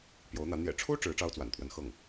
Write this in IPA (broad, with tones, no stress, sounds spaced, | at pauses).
p j o˧˥ ʊ̯ n̪ ä˧˥ n̪ j ɛ̰˨˩ ʈ͡ʂʰ u˥ ʈ͡ʂ ɻ̩˧˥ ʈ͡ʂ ɑ˥ ʊ̯ t͡s w a̰˨˩ n t̪ʰ w ə˧˥ n x ɤ˥˩ ŋ